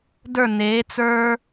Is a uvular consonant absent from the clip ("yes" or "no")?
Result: yes